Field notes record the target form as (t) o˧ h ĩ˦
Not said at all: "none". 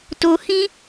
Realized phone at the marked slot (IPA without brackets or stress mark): t